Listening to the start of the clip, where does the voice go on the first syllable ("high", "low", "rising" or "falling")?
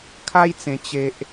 high